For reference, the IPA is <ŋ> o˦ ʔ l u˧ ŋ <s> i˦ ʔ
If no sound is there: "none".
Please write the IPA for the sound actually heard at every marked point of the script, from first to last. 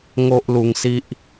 ŋ, s

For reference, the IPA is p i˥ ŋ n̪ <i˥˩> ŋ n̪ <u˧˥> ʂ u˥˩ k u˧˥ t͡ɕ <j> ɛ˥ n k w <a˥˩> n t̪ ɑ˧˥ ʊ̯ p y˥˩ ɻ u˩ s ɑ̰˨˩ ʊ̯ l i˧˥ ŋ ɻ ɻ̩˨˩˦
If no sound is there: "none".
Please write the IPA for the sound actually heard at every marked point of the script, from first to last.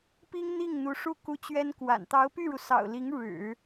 i˥˩, u˧˥, ɥ, a̰˨˩

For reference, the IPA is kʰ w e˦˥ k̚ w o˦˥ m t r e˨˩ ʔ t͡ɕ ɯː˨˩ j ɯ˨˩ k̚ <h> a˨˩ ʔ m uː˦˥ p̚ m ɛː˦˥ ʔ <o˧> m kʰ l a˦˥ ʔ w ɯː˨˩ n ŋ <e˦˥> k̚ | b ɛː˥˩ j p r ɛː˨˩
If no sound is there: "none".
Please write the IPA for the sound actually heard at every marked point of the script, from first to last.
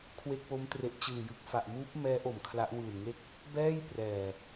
f, o˨˩, e˦˥

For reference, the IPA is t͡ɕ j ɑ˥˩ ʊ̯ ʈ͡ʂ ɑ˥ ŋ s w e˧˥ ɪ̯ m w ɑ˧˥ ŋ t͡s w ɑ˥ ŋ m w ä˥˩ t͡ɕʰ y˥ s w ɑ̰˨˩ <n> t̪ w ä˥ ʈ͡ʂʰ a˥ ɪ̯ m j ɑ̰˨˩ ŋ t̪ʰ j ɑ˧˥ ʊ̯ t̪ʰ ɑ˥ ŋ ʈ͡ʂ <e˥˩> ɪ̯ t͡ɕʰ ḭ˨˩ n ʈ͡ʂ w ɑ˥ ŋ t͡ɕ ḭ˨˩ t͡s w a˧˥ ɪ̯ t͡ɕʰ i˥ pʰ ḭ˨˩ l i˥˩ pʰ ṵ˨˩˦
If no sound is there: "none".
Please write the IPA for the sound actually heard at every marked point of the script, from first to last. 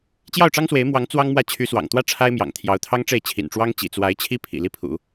ŋ, e˥˩

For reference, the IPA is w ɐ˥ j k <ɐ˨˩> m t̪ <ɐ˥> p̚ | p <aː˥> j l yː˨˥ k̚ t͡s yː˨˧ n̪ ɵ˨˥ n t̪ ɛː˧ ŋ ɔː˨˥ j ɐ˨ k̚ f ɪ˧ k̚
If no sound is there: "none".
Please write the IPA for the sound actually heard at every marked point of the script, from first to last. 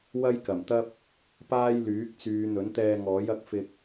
ɐ˨˩, ɐ˥, aː˥

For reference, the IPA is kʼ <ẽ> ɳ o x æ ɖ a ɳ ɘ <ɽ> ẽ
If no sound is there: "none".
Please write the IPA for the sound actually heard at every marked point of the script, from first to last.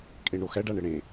e, ɽ

